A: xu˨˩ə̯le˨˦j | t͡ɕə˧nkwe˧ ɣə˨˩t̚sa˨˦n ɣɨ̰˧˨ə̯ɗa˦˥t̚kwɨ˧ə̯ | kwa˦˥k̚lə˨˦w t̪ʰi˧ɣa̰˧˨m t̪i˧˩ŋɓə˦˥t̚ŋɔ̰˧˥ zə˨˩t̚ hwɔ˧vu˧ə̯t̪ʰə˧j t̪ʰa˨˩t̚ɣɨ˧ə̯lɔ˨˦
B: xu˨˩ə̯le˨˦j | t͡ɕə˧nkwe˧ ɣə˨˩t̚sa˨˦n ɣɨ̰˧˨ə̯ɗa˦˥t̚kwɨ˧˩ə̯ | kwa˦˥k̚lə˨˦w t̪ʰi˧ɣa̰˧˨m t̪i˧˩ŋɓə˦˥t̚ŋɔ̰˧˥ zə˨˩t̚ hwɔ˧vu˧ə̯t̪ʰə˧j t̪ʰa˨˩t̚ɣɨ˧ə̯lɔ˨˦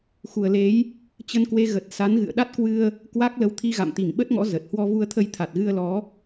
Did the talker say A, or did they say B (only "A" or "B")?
A